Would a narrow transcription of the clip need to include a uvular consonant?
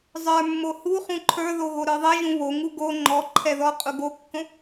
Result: yes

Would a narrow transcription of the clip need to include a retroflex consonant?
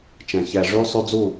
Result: yes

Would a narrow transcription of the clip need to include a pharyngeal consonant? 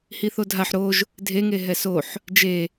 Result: yes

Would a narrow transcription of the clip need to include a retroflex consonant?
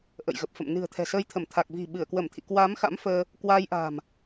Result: no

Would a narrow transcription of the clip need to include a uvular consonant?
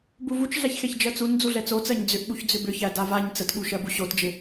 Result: no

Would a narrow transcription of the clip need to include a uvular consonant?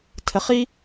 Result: yes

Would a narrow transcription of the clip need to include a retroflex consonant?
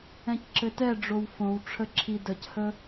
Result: yes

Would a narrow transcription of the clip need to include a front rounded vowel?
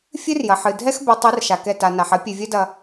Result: no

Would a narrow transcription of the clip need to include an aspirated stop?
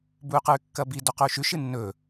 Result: no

